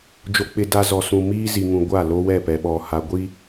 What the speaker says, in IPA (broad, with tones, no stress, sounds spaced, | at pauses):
d͡ʒ o˨ k͡p ɪ˨ d a˨ z ɔ˨ s ũ˨ m iː˦ z i˨ ŋ ũ˨ ɡʷ a˦˨ l o˦ w ɛ˦˨ p ɛ˨ ɓ ɔ˨ h a˨ ɡʷ i˦